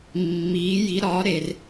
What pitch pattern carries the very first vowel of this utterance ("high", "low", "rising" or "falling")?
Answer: rising